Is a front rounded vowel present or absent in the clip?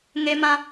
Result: absent